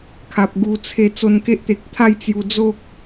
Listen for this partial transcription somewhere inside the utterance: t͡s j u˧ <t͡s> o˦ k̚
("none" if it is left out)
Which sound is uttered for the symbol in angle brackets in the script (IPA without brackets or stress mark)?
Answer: d͡z